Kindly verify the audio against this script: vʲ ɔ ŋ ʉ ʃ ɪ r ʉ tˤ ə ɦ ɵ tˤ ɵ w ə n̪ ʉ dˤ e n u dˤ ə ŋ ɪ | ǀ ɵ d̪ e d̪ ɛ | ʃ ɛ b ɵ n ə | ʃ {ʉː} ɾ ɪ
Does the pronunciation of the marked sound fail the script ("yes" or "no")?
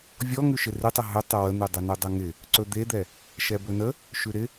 yes